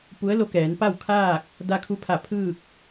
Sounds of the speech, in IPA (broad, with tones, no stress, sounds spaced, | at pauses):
p u˧˥ ə̯ l o˧ k ɛː˩˧ n p a˥˨ w kʰ aː˥˨ k̚ | d a˧ kʰ u˧ pʰ a˧˩ pʰ ɯː˥˨ k̚